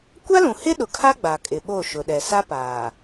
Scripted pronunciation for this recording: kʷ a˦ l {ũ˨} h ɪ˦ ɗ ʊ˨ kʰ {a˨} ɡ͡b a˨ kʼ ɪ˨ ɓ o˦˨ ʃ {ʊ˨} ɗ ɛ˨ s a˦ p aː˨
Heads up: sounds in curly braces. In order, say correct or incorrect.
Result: correct, incorrect, correct

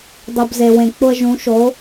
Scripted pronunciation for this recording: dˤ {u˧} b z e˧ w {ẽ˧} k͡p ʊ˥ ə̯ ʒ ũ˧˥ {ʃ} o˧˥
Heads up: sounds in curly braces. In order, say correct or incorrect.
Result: correct, correct, correct

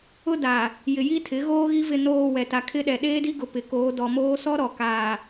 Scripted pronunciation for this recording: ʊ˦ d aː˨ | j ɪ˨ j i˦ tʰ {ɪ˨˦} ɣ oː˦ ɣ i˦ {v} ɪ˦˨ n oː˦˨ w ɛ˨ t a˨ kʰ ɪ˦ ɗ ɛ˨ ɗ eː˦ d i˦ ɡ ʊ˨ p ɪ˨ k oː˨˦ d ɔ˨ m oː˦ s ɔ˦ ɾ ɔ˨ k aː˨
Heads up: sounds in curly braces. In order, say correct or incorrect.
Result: correct, correct

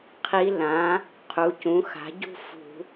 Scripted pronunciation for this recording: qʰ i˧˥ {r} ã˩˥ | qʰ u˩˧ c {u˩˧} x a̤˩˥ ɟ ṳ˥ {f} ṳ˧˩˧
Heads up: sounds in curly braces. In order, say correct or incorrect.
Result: incorrect, incorrect, correct

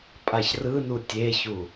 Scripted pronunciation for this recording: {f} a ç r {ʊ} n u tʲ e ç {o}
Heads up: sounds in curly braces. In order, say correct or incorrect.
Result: incorrect, incorrect, incorrect

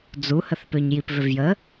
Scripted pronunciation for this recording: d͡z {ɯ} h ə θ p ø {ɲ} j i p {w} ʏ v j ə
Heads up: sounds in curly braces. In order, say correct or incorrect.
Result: incorrect, correct, incorrect

